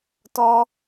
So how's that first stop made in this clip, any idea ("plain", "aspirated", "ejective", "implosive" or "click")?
plain